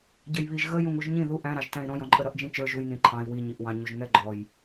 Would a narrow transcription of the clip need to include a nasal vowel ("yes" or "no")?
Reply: yes